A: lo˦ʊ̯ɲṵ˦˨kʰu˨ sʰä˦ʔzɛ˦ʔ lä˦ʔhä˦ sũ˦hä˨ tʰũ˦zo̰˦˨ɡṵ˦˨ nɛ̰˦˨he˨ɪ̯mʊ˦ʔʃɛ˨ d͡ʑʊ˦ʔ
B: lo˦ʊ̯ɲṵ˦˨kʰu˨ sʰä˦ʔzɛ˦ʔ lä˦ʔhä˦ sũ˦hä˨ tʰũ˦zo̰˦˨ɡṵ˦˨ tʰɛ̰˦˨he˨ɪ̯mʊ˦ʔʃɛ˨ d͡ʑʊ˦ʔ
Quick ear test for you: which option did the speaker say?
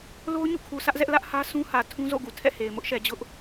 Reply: B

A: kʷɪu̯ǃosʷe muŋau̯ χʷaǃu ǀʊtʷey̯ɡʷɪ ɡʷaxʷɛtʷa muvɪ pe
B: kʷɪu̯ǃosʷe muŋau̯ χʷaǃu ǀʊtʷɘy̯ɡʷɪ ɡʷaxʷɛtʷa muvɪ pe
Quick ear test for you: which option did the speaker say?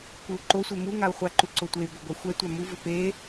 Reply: A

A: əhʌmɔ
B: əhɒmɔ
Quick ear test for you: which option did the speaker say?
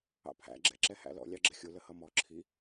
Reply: A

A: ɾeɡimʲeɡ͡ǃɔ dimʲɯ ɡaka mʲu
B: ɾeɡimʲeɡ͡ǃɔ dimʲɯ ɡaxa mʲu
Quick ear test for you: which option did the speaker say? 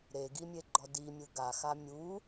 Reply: B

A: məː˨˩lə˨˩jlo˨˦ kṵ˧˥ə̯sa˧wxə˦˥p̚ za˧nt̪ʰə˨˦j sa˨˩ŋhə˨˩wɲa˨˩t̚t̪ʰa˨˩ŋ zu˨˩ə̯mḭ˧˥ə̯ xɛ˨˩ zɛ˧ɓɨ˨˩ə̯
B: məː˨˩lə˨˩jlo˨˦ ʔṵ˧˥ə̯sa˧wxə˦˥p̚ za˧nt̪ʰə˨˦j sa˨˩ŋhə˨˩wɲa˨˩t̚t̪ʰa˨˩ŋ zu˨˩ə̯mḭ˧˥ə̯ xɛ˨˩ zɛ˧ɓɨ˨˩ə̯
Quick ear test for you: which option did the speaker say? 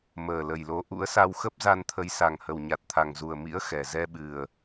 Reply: B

